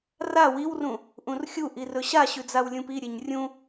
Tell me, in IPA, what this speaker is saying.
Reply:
r a w i w r ũ | ʔ ũ r xʲ u ʔ i r ɵ ɕ a ɕ ʉ d͡z a w lʲ ũ p i ɾʲ e ɲ rʲ ũ

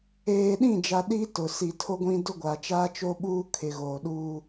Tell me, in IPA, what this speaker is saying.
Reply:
eː˨ ɗ ĩ˦˨ d͡ʒ a˨ ɗ i˦ t ʊ˨ s i˨ tʰ o˦ ɡʷ ĩ˦ d ʊ˦ ɡʷ a˨ t͡ʃ aː˦ t͡ʃ o˦ ɓ uː˦ kʰ ɪ˨ ɣ oː˨ ɗ uː˦

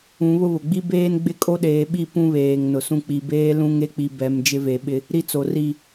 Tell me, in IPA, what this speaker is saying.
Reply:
ũ˨˦ β ʊ˦ β ʊ˨ ɡ͡b i˦ b eː˦ n ɡ͡b ɪ˦ kʼ o˦ ɗ eː˨ ɓ i˦˨ p ũ˦ β eː˨ ŋ n ʊ˨ s ũ˦ k͡p i˨ b eː˦ l ũ˦ ŋ e˦ k͡p i˨ b ɛ˨ m d͡ʒ ɪ˦ v e˨ ɓ ɪ˦ | ɾ i˦ t͡s o˨ r i˦˨

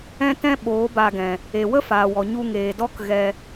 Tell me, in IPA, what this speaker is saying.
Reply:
ɛ̃˦ t ɛ̃˦ ɓ oː˨˦ b a˧ ɡ ɛ̃˨ | e˨ w ə˦ f aː˨ w ɔ˨ ɲ u˧ ŋ eː˨ d ɔ˦ k ɣ ɛ˧

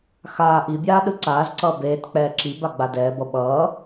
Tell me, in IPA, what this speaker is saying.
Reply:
x aː ʔ i bʲ aː ɗ ɯ ǀ aː z ǀ ʌː b eː t k͡p ɛː ǁ i b a ɡ͡b a d ɛː b ʌ ɓ ʌː

